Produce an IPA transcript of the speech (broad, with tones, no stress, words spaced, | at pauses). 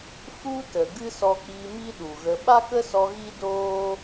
fu˦tə˨ ɡɨ˦sɔ˧k͡pi˧ mi˦ɗu˨ɣə˧ ɓa˦kə˦sɔ˧ ɣi˦doː˦